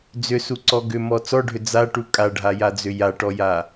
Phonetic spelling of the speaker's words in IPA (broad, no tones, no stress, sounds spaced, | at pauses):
d͡z ʏ s u ǀ ɔ ɡ ʏ m ɔ t͡s ɔ ɖʱ ʏ d͡z a ʈ u kʼ a ɖʱ a j a d͡z ʏ j a ʈ ɔ j a